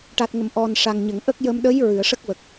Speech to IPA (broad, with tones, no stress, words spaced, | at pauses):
ʈa˨˩t̚ŋə˨˩˨m ʔɔ˨˩n ʂa˨˩ŋɲə˨˩˨ŋʔə˦˥k̚ jə˧mɗə˧˥j ɹɨ˨˩˨ə̯ʂə˦˥k̚ wə˨˩k̚